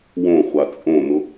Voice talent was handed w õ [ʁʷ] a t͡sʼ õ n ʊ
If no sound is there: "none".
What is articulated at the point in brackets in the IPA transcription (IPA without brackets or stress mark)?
χʷ